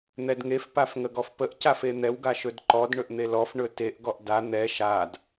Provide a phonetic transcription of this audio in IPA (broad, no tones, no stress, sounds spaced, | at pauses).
n̪ ɛ d ŋ e f p a f ŋ ə ɡ ɔ f p ə ʔ c a f e n̪ ɛ w ɡ a ʃ ɵ d ǃ ɔ d ɳ ɵ ʔ n̪ e l ɔ f ɳ ɵ t e ʔ ɡ ɔ ʔ d a n̪ ɛ ʃ a d